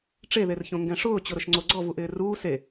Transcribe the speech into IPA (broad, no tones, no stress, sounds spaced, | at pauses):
ʈ͡ʂ e ð e r ç õ ŋ ɡ ɛ̃ ʂ ʊː t͡ɕ ʊ ɾ ʊ ʃ ŋ͡ǀ o ɡ͡ǀ ɔ v u ʔ ɪː r uː s e